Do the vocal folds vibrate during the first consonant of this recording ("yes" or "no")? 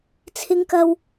no